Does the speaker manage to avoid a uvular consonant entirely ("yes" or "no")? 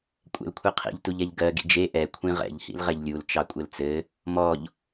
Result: no